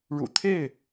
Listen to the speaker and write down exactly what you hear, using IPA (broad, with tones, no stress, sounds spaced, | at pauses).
ɻ ṵ˨˩ t̪ʰ e˥˨ ɪ̯